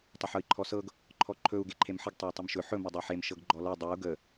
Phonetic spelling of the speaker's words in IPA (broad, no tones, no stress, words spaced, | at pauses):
tˤəħɤi̯ǃʰɔsɤɡ | ǃʰɔǃʰɵu̯ ɡeǃʰemħəɡ tˤey̯tˤɵmʃɵ ħɵ mɘdˤɤħem ʃɤɡɡ͡ǃɔlɤ dˤeu̯ ɡə